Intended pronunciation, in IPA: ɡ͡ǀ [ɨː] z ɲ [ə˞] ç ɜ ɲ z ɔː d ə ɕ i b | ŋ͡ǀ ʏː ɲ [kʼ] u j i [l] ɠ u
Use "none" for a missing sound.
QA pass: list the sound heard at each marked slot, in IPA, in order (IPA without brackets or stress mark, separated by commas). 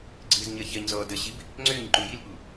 ɨː, ɜ, ǃ, l